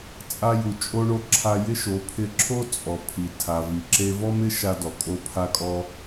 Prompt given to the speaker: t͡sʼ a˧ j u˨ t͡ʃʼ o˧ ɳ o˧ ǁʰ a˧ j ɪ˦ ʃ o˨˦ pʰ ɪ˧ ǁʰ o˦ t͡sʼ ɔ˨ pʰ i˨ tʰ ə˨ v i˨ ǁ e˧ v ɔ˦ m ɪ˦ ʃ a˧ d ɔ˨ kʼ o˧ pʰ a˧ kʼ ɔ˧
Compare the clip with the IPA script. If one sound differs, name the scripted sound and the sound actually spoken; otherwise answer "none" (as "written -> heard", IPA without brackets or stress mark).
ə˨ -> a˨